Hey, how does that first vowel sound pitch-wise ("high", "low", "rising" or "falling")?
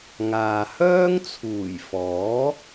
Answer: low